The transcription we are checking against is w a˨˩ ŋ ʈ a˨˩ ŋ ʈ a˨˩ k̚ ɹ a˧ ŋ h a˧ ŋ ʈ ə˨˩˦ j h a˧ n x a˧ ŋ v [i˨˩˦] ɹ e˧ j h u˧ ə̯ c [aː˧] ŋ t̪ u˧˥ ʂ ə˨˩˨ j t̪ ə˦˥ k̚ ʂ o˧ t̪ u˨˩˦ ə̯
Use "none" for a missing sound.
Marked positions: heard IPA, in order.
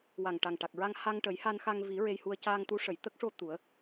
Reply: i˨˩˦, aː˧

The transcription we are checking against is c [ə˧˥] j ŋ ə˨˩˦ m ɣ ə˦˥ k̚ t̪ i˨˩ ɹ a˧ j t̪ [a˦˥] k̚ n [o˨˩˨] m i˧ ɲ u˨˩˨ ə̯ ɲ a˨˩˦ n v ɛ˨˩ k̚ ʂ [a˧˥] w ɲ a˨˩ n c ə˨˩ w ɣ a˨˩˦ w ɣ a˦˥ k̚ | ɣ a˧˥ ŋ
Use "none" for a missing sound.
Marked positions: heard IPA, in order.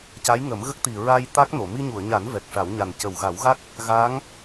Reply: a˧˥, a˦˥, o˨˩˨, a˨˩˦

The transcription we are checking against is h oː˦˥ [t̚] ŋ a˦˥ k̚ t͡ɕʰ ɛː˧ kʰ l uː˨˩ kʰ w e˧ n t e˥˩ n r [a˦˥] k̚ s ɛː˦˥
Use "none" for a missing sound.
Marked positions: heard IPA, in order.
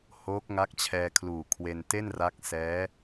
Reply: k̚, a˦˥

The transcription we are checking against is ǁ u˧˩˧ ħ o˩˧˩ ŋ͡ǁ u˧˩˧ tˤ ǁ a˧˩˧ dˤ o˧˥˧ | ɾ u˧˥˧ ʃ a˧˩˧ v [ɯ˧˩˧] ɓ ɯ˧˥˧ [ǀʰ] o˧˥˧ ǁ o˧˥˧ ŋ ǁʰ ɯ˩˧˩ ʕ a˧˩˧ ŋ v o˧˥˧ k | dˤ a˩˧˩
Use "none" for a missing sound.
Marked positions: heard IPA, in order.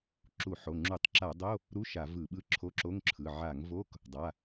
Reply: ɯ˧˩˧, ǁʰ

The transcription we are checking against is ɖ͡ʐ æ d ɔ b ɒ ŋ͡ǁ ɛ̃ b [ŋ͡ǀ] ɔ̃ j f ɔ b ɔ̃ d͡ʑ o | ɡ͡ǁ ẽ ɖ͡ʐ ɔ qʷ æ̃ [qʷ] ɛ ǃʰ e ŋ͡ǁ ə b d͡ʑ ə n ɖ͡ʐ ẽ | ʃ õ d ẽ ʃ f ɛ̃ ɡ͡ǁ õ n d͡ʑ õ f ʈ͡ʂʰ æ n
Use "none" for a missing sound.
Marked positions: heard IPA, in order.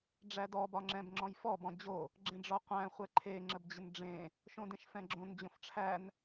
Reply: ŋ͡ǁ, χʷ

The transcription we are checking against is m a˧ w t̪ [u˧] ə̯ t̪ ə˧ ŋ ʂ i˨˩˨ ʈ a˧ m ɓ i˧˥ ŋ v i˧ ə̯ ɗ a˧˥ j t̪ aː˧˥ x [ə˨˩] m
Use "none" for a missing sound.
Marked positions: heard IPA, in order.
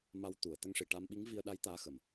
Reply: u˨˩˨, ə˨˩

